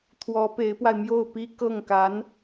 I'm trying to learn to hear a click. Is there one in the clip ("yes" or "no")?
no